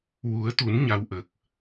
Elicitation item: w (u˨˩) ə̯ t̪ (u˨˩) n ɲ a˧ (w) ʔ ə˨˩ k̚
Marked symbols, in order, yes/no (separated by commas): no, no, yes